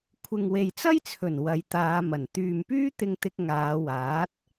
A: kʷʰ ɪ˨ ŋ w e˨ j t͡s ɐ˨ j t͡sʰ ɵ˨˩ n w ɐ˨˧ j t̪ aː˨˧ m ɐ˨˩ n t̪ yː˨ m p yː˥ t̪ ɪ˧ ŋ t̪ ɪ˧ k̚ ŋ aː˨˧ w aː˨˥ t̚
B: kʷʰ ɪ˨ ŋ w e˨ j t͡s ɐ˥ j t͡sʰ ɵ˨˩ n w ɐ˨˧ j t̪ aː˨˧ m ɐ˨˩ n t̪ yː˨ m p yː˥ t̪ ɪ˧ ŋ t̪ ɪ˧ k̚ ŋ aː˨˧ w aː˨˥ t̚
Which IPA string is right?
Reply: B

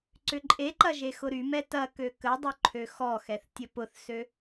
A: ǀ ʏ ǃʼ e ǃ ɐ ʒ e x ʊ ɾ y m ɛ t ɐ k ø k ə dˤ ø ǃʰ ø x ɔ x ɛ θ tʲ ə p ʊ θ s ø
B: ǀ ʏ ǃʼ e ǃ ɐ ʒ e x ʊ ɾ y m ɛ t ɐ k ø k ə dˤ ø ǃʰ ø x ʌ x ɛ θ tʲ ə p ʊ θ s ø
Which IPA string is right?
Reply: A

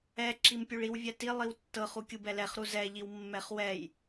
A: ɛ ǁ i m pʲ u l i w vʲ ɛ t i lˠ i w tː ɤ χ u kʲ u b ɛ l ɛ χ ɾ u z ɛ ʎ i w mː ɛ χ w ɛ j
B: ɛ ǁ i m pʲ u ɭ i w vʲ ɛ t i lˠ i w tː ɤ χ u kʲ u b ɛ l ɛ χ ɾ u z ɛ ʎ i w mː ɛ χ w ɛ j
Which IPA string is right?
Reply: B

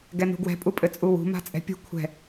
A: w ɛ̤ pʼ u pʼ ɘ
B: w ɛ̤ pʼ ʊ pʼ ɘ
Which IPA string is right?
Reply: A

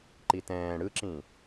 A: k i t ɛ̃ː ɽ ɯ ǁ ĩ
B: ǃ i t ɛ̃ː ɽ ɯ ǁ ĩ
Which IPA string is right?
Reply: B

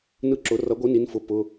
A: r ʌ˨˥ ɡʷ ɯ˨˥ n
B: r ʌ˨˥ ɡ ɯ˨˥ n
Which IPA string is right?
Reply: A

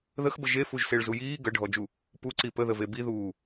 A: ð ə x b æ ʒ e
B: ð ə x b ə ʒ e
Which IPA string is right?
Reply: B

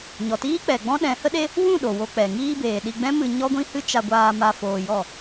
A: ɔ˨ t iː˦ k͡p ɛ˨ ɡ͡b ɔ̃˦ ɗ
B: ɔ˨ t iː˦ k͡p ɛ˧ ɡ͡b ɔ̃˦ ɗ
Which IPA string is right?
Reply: A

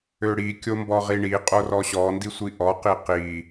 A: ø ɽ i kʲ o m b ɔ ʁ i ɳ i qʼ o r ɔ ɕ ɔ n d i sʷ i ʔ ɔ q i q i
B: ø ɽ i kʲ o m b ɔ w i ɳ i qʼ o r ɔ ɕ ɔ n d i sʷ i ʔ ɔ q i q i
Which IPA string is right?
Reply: A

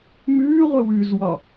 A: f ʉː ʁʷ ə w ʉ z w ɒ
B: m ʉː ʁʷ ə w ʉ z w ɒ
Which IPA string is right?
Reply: B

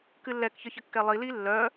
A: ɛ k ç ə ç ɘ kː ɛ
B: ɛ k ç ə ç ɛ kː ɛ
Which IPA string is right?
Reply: A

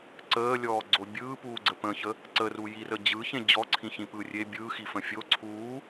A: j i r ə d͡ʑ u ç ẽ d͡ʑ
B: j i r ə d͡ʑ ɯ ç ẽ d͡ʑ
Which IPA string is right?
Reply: B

